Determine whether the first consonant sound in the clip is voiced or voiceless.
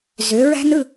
voiced